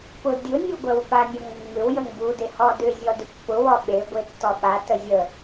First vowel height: high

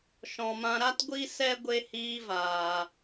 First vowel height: mid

